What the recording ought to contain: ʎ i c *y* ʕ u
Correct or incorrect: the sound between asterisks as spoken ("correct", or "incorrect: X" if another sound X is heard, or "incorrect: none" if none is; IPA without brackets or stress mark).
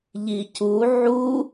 incorrect: u